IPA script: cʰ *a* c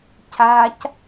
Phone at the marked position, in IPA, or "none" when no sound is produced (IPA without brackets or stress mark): a